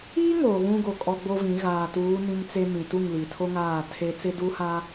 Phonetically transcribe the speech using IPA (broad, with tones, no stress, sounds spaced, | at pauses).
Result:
i˦ ŋ oː˨ ɣ ũ˦ ɡ o˨ kʼ ɔ˦ ɡ͡b o˦ v ĩ˨˦ ɣ aː˨ t uː˨˦ n ĩ˦ m t͡s e˦ m ĩ˨ t u˦˨ ŋ l i˨ tʰ o˦ ŋ aː˦˨ tʰ e˦ t͡s ɪ˦ d u˦ h a˦